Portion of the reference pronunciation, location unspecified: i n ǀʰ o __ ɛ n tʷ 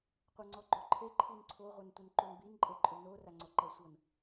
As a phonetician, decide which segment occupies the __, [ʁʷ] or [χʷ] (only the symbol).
ʁʷ